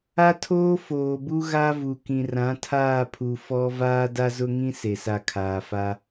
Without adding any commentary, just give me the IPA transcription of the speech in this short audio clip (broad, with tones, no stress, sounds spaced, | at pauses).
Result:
a˦ tʰ oː˦ f oː˨ b u˦ ɣ a˦ v u˨ k ĩ˨ r ã˨˦ tʰ aː˦˨ pʰ u˨ f ɔ˦ v aː˦ d a˦ z ʊ˦ ŋ ĩ˦ s e˨ s a˦˨ kʰ aː˨ f a˦